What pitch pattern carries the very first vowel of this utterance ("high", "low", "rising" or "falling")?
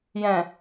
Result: low